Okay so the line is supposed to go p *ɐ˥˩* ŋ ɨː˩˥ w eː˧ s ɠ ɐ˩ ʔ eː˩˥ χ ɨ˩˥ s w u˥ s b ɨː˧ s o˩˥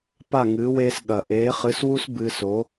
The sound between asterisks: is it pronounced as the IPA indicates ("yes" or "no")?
no